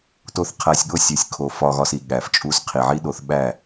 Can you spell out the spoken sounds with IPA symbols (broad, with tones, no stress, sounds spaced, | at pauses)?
t o˧ θ qʰ æ˧ sʲ ɠ o˦ sʲ u˨ sʲ kʰ o˨ f ɒ˧ ɣ ɒ˧ s i˨ ɠ æ˨ f t͡ʃʼ u˧ s qʰ i˨ ʕ i˦ ɗ o˨˦ θ ɓ æ˦˨